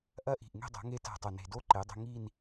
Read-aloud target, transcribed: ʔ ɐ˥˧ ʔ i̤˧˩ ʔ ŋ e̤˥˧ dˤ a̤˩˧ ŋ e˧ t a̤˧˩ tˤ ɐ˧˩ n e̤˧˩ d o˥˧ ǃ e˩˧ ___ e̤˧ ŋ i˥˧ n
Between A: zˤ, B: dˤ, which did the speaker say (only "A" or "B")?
B